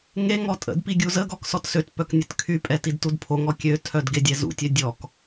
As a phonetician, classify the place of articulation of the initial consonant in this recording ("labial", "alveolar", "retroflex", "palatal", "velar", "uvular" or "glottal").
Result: velar